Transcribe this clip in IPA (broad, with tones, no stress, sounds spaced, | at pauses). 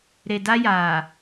ɾ e˨ d a˦ j aː˨